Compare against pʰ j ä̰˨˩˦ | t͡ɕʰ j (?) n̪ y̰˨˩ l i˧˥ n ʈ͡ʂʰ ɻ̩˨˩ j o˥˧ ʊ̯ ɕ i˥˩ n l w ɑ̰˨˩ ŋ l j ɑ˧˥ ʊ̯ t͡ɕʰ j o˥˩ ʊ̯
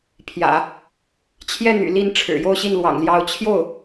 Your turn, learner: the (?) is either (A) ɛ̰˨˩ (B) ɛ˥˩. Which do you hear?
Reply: B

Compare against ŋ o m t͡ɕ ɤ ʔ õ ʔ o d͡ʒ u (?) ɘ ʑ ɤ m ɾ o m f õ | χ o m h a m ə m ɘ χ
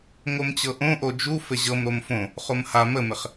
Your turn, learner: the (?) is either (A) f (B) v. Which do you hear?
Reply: A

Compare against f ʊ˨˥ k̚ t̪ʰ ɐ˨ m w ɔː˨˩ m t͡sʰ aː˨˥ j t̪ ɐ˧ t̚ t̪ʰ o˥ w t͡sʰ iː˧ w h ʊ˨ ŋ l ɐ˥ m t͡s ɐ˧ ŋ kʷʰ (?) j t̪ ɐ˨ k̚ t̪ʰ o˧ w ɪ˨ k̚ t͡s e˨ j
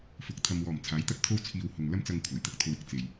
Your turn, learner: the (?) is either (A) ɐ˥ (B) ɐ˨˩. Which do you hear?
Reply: B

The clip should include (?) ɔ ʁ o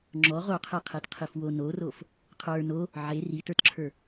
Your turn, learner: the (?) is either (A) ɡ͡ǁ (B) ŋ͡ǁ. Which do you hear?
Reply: B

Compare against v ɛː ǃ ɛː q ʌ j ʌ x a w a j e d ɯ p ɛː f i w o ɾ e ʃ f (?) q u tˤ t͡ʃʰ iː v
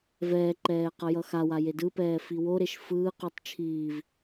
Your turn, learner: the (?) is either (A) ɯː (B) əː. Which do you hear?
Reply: A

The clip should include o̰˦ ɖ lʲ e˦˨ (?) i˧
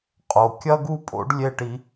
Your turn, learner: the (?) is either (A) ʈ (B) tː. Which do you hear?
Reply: A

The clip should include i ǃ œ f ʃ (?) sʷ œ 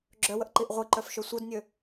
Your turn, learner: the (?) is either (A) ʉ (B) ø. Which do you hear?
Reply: B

